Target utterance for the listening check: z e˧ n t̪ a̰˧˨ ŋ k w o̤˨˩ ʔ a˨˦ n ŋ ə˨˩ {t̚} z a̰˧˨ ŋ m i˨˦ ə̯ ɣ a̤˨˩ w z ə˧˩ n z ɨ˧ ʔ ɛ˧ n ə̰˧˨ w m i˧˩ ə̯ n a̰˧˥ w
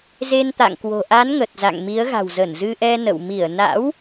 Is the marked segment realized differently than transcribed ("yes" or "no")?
no